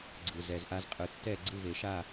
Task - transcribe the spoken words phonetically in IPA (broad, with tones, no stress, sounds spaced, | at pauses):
ɡ͡ǀ ɯ˩ z ɛ˩ z ʔ a˧ z qʼ ɯ˩ tː ɛ˥˨ ɡ͡ǀ ɯ˥˨ v e˨˩˦ ʃ a˥˨